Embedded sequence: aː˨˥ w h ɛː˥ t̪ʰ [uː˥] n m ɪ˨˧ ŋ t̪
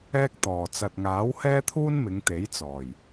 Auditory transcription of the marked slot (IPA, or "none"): uː˥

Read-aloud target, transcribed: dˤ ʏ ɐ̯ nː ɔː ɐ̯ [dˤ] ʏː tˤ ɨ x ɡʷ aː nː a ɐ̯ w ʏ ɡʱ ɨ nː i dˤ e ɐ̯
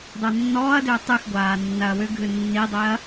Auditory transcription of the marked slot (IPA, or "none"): d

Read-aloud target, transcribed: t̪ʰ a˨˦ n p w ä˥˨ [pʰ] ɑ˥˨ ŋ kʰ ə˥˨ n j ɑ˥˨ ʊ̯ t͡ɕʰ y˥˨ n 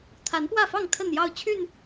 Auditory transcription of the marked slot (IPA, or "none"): f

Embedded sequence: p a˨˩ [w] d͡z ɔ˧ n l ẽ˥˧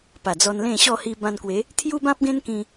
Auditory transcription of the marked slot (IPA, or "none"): none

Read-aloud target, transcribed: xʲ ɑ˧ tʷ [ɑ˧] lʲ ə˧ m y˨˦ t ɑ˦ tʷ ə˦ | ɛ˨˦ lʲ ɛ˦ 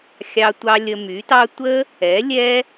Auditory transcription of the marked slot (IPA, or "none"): ɑ˧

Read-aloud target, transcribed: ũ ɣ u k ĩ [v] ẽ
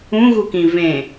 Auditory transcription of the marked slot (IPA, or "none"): v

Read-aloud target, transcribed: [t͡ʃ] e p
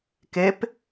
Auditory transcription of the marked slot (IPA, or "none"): k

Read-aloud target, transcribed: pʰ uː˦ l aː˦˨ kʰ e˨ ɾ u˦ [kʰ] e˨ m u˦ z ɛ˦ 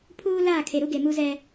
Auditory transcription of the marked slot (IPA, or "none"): ɡ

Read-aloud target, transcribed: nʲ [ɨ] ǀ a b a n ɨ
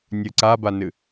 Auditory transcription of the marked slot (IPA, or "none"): ɨ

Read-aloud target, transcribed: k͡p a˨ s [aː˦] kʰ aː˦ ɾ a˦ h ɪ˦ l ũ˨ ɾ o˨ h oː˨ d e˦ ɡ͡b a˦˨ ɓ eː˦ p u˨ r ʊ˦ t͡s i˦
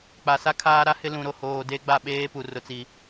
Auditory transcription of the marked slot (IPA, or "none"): a˦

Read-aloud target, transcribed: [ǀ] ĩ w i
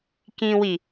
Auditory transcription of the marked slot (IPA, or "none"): k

